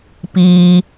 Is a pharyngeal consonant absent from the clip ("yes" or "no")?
yes